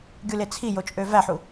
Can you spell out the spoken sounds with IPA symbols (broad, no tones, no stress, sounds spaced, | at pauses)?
ɡʲ u l e t͡sʰ i j o t͡ʃʼ ø v æ ħ u